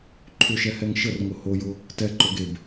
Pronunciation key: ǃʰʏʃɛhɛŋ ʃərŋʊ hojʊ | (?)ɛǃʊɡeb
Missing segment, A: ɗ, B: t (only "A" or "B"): B